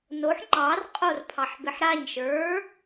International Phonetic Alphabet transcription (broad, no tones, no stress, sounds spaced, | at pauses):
n o ħ ŋ͡ǃ ɑ r qʼ o r pʰ ɑ ħ b ɪ ħ ɾ a ɲ ʃ ə˞